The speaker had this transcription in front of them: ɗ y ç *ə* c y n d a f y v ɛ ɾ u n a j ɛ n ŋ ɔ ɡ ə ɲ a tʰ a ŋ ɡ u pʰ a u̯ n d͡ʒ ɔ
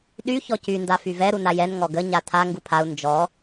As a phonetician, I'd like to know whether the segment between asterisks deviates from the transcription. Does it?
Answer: yes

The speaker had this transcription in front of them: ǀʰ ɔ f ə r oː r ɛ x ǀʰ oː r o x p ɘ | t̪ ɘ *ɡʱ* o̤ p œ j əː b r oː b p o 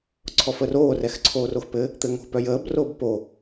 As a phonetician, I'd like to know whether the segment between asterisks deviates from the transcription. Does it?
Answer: yes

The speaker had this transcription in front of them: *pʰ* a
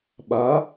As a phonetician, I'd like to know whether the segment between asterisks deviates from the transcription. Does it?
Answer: yes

